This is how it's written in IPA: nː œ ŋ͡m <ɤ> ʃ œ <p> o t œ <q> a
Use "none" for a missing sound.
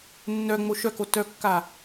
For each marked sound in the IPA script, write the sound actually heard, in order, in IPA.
o, k, kː

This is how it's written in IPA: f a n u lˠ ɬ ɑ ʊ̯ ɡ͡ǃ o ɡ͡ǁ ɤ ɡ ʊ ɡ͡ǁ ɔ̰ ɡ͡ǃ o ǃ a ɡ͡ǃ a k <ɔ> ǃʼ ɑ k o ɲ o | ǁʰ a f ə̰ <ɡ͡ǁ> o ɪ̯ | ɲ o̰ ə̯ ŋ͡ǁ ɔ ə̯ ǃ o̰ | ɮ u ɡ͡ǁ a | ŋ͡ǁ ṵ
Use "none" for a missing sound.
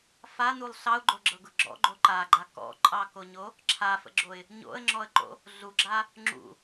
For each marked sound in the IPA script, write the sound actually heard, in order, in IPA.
ɔ̰, ɡ͡ǁ

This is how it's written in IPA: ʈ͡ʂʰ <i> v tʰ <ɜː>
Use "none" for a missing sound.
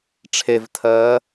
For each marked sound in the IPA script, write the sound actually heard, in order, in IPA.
e, ɜː

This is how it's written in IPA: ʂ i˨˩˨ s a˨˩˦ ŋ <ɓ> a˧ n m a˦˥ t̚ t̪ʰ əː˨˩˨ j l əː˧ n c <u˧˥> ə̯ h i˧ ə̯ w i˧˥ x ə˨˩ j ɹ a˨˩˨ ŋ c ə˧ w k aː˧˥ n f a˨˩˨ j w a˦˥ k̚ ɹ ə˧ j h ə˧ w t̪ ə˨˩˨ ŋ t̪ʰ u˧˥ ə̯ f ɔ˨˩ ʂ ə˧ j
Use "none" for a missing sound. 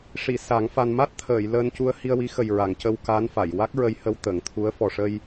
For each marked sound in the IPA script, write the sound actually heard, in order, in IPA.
f, u˧

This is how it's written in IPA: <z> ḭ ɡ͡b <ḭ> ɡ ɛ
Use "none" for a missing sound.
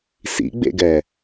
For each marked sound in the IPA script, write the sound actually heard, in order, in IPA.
s, ḛ

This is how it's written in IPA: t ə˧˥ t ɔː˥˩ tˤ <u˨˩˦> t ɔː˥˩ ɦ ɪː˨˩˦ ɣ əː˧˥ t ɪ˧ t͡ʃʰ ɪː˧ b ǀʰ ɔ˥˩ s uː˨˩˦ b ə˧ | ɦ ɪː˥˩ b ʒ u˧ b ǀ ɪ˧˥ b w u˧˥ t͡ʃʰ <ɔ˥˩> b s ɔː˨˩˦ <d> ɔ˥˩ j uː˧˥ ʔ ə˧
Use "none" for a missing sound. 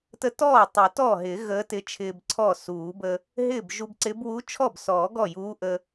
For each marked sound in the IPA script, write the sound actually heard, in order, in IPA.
u˨˩˦, ɔ˥˩, ɡ

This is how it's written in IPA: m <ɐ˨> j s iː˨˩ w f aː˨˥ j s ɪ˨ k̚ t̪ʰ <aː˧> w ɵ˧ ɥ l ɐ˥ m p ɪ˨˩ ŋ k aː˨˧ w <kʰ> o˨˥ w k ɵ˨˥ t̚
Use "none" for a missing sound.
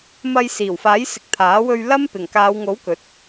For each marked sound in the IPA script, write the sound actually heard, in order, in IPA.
ɐ˧, aː˨˥, ŋ

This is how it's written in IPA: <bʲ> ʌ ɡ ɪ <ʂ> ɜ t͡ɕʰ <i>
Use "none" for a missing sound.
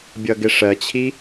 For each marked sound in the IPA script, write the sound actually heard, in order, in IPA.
bʲ, ʂ, i

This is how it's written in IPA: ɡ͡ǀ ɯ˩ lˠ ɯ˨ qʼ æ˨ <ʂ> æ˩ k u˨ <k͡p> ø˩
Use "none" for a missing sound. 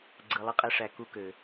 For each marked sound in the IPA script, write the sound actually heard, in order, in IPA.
ʂ, k

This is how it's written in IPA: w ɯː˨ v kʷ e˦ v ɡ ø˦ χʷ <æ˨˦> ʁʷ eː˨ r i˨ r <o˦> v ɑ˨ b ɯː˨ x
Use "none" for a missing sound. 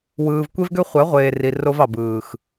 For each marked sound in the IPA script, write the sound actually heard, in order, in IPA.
æ˨˦, o˦

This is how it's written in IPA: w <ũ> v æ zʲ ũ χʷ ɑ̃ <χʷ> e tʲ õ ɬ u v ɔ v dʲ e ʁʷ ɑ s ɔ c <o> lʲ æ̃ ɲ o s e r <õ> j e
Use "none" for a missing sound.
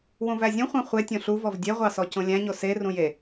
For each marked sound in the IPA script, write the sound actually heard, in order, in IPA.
ũ, χʷ, õ, ũ

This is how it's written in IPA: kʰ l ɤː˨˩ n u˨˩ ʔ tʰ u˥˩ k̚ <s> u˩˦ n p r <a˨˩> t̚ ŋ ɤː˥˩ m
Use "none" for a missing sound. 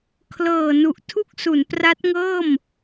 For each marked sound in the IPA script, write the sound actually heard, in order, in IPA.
s, a˦˥

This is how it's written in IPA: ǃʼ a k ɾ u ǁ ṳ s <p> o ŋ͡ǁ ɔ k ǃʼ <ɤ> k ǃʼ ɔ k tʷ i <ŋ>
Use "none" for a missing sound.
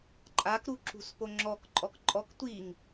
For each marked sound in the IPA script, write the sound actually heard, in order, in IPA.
p, ɔ, ŋ

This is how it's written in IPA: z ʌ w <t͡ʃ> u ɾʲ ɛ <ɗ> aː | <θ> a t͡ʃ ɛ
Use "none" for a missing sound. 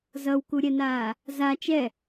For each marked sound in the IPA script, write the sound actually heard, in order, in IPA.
k, n, z

